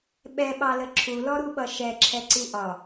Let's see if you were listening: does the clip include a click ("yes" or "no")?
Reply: yes